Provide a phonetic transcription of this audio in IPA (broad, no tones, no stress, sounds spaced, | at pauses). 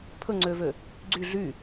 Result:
pʰ ɵ ŋ͡ǀ øː v ø | ɡ͡ǀ y ɮ y